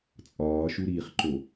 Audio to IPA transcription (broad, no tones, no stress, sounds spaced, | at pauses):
t͡sʼ ɒː ʃ u ɾ iː χ ǃ o